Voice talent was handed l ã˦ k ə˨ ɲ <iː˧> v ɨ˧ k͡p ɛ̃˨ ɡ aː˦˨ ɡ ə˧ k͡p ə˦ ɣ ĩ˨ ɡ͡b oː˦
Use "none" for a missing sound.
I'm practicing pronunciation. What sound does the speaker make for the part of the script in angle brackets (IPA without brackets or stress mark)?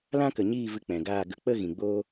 iː˦˨